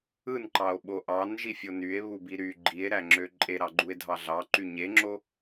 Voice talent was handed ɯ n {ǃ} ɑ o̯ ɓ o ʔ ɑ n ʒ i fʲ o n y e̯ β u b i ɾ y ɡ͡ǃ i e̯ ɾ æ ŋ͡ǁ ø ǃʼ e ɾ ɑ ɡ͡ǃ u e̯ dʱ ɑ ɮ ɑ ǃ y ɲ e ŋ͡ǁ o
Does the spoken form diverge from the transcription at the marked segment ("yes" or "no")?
no